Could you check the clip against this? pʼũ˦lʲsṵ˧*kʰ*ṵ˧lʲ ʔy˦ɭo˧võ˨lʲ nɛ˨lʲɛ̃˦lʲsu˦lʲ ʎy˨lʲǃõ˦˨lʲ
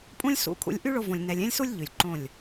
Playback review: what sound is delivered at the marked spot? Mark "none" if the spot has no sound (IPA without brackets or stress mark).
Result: kʰ